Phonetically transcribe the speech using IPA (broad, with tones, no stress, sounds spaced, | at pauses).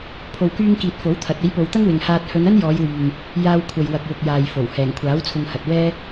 pʰ o˨ w k yː˧ ŋ k iː˨ t̚ f o˨˥ w t̪ʰ ɐ˨˥ t̚ e˨˥ j p o˨ w t̪ ɐ˥ ŋ w ɪ˨˩ ŋ h aː˨ t̚ h ɵ˨˧ n ɐ˥ n j ɔː˨˧ j w yː˨ ŋ | j aː˧ w kʷʰ ɐ˨ j w ɐ˨ k̚ w ʊ˨ k̚ j aː˨ j f o˨˩ w h ɛː˨˩ ŋ kʷʰ aː˨˥ w t͡sʰ ʊ˧ ŋ h ɐ˨ t̚ w ɛː˥